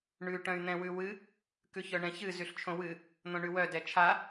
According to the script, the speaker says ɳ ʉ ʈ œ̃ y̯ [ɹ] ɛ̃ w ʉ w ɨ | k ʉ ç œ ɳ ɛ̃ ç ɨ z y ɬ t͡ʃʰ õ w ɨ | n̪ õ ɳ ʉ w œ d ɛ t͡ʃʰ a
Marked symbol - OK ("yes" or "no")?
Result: no